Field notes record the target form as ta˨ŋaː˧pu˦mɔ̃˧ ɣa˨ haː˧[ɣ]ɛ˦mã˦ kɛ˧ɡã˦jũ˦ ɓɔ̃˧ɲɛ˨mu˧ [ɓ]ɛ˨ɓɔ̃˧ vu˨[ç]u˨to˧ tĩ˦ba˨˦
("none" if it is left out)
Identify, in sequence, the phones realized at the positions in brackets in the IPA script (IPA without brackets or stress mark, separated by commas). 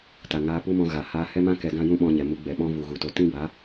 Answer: h, ɡ͡b, ɣ